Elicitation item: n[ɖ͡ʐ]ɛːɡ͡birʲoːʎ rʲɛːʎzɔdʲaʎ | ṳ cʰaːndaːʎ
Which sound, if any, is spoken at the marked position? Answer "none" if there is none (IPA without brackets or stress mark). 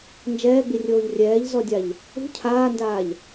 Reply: d͡ʒ